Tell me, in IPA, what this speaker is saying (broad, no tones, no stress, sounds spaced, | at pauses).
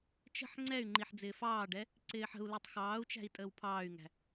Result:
t͡ʃ ə̤ ħ ŋ͡ǀ ɛ y̯ ŋ͡ǃ i ħ d͡z ɪː f ɑː ɖ ɛ | ǀ ɪː ħ ə̤ u̯ l ʊ tˤ x ɑː u̯ t͡ʃ æ̤ i̯ tʼ əː w pʰ ɑː y̯ ŋ æ̤